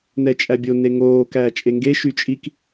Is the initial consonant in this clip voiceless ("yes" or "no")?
no